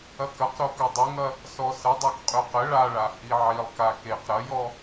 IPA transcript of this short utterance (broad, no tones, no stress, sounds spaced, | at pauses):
ɐ k ɐ q ɾ o k ɵ dˤ ɵ ŋ ɐ | s ɔ s ə dˤ a k qʼ ø q ə ɭ a ɭ a h i ʕ i lˠ k a k e q ɾ ɐ j ɔ